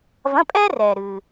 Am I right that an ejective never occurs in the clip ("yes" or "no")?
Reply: no